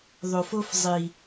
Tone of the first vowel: low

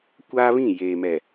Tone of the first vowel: high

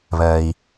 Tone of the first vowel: low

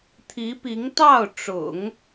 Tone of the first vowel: rising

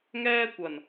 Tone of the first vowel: high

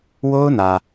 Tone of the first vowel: high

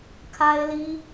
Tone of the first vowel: high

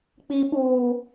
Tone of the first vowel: high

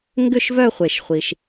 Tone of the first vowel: falling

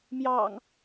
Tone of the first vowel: low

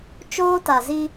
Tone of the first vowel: high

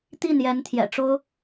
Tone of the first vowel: falling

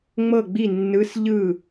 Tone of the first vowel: falling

